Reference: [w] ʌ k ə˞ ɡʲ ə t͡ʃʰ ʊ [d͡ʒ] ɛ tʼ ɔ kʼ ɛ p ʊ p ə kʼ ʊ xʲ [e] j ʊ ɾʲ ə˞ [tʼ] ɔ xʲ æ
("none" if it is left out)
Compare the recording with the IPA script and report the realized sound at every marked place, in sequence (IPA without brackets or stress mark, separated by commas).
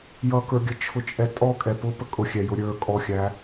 j, t͡ʃʼ, ɛ, kʼ